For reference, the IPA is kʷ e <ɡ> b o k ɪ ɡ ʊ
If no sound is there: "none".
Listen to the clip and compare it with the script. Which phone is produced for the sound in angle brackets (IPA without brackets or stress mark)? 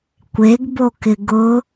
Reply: ɡ